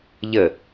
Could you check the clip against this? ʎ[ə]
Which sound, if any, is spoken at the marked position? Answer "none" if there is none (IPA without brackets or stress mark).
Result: ə